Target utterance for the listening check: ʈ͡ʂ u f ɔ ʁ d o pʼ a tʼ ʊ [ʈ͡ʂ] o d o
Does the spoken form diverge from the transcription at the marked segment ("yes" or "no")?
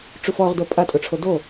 yes